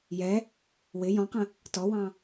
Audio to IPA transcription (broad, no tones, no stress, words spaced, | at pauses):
jɛ | wɪ jɔ̃qə̃ | tɔwɑ̃